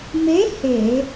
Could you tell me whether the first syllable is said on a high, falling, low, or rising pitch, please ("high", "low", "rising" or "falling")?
rising